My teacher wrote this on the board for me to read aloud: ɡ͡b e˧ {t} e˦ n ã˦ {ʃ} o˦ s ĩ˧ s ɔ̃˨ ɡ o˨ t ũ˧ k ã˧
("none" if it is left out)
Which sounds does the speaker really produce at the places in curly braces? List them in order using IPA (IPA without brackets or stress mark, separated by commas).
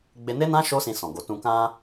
n, ʃ